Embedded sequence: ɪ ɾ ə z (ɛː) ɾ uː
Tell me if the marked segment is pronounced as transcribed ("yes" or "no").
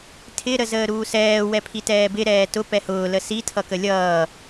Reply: no